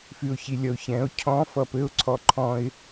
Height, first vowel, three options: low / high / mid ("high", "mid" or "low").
high